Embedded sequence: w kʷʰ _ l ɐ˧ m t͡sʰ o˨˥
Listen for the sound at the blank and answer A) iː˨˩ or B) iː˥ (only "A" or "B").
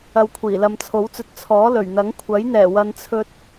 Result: A